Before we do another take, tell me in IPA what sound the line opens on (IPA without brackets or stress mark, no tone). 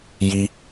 j